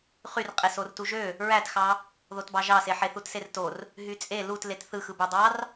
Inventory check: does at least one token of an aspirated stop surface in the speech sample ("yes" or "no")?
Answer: no